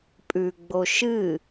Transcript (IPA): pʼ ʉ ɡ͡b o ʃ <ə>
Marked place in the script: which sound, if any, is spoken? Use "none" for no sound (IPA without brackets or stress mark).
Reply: ɨ